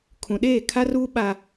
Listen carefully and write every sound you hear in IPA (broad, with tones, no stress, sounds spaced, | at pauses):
kʰ ũ˨ ɗ eː˦˨ kʰ a˦ r uː˦ ɓ a˦